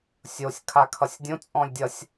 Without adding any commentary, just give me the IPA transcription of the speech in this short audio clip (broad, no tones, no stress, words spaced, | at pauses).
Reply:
sʲosʲ kʰakʰʌsʲdʲõ t͡sʼɔ̃lʲdʲʌsʲ